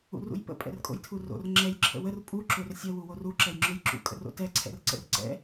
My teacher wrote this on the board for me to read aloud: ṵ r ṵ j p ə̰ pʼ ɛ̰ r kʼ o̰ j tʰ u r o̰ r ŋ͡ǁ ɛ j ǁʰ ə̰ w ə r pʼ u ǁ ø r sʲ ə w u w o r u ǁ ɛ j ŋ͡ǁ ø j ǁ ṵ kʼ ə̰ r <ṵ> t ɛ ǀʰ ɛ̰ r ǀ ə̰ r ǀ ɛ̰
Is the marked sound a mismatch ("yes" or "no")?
yes